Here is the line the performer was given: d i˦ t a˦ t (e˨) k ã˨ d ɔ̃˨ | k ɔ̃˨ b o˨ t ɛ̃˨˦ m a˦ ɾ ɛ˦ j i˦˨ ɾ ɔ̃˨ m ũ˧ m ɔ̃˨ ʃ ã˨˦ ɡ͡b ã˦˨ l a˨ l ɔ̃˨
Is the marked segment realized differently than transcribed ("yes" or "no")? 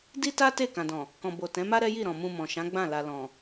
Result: yes